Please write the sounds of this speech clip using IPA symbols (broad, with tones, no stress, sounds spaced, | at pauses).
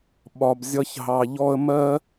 ɓ ɒ˨ b zʲ ʌ˧ ç ɦ ɑ˨ ʎ ɔ˧ ə̯ m ɜ˦